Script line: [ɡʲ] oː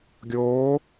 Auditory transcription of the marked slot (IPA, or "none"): ɡʲ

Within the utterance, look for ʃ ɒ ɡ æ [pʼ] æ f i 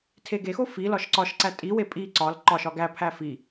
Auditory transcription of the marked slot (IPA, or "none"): pʰ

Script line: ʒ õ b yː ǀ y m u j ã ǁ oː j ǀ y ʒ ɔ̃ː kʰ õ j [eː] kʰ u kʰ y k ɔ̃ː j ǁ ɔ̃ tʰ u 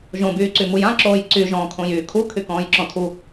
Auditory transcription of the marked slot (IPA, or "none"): yː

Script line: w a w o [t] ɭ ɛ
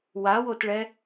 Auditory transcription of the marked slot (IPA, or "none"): t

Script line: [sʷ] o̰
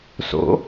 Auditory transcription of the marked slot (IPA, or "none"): s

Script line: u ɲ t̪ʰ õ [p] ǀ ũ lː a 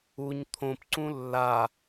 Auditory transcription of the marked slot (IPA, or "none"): p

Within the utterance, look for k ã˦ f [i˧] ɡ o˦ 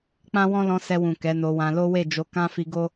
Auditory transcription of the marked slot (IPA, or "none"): i˧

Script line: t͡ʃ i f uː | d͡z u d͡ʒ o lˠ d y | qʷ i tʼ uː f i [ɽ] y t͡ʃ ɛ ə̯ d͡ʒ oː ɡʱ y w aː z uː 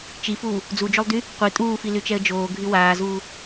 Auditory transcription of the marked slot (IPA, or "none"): l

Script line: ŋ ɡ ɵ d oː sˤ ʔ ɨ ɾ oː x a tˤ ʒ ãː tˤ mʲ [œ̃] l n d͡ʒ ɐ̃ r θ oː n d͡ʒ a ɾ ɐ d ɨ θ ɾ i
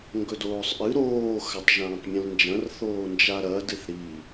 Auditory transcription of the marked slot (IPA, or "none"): ə̃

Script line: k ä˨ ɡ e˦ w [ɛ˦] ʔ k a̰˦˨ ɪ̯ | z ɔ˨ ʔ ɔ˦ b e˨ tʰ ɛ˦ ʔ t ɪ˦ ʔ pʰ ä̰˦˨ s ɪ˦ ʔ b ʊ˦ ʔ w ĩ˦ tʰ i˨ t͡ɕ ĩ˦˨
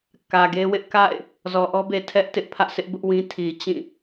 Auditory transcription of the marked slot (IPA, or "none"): ɪ˦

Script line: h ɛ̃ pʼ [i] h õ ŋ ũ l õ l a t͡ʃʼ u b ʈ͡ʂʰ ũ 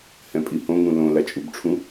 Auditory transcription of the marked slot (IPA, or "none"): i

